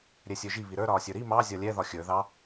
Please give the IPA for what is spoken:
ɾʲɛsʲə˞ʒi βiɾə˞ ɾɒːsʲə˞ɾi mɑ zʲɒlʲɛ ðɒxʲə˞ ðɑ

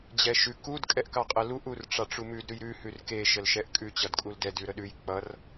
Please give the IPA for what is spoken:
d͡ʑɛʃʉ kud kʼɛʔkɑqʼəluʔ urʈ͡ʂɑʈ͡ʂumʉd ɾʉjɾʉ hʉrke ʃəlʃɛʔkʼʉ t͡ɕʌdkʼuldɛd ʉɾəɗʉj k͡pʌr

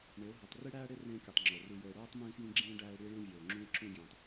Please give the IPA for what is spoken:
ɳe˨˦ʊ̯ɦo˨tˤ ri˦ɽæː˦ɽe˦ rẽː˦kʲu˨tˤŋ͡ǁo˨ ru˨ jo˨ɪ̯ɽoː˦tˤ mĩː˦fjĩ˦ɡ͡ǁĩː˦ ɖæː˦ɪ̯ɽi˦ ɭẽ˦ vʲoː˨ŋ͡ǁũ˦ɪ̯ǁũ˦ɡʲẽː˨tˤ

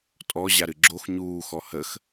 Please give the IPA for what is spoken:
tʼɔ ʑaɾɨɡ͡ǁox ɲuːxɔ həx

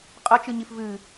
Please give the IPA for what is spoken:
qʼɐt͡ʃɨɲif vɨ

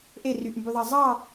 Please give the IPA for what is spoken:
ʔe ryʔmbyðˤɑ zˤɑ

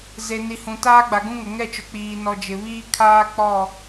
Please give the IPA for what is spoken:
ze˨ni˨hũ˨ taː˦ɡ͡ba˨ɡũ˦ŋʊ˨ ŋɛ˦˨t͡ʃʊ˨k͡piː˨ nɔ˨d͡ʒɪ˨βiː˦ kʰaː˦k͡pɔ˦˨

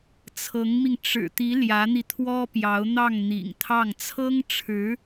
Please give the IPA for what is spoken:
t͡sʰɤ˧˥ŋmi˧ŋ ʈ͡ʂɻ̩˨˩t̪i˧˥ ljä˧˥n̪i˧t̪ʰwɔ˥pjɑ˧˥ʊ̯ n̪ɑ˥˩ŋn̪ḭ˨˩ŋt̪ʰɑ˥˩ŋ t͡sʰɤ˥ŋʈ͡ʂʰɻ̩˧˥

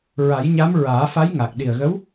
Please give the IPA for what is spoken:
ɹa˨˩˦jɲa˧˥m ɹaː˨˩˦fa˧˥j ŋa˨˩k̚ɗi˨˩ə̯ɣə˧˥w

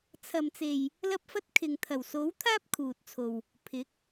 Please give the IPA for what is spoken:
t͡sʰɐ˨mt͡se˨j | lɐ˧p̚fɐ˧t̚ kʰɪ˨ŋt̪ʰɐ˨˩wso˨˥w t̪ʰaː˥p̚kʰuː˨t̚t͡sʰo˨w | pʰɪ˨˥k̚

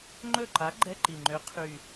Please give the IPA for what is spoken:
ŋ͡ǃɵ˥˩ǃa˨˥ ɡ͡ǃɛ˧˥˧ǃi˨˩ŋ͡ǃø˨˥ qʰy˨˩

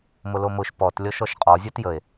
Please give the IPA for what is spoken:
mʊlomʊʃ pɔt lʲɔʃɔʃqʼɔ zʲotjəe̯

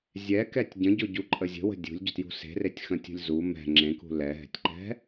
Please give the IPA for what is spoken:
zʲɛkɛtʲ ɟə̃ɟʊɟuǃʼə zʲə̤wə̤ dʲṳlʲɟʊtjṳ se̤retʲxə̃tʲṳlʲ zu mɛ̤ ŋ͡ǁẽkṳ lɛɦɛ̤tʲǃɛ̤

